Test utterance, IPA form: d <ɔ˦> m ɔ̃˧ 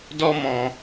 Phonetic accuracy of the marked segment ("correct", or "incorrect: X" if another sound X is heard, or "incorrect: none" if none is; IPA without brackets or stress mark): correct